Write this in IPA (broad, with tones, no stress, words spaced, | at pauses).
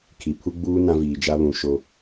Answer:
kʰi˨pʰu˦ɡ͡buː˦ nã˦viː˨d͡ʒa˦ βũ˨ ʃo˨